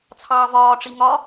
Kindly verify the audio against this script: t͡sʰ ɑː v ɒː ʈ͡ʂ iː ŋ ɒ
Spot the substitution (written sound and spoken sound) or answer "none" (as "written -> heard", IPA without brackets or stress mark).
iː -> i